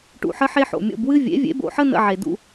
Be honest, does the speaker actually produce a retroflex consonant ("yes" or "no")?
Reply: yes